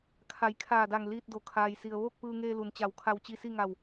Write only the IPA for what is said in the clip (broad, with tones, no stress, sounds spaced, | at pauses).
kʰ a˩˧ j kʰ aː˧˩ d a˧˩ ŋ l iː˧ t̚ d o˩˧ kʰ aː˩ j s i˩ ə̯ ʋ oː˥˨ k̚ p ɯː˧ ŋ eː˧ l u˩ n t͡ɕ a˧˩ w kʰ a˧ w t͡ɕ i˧ s i˥˨ ŋ a˧˩ w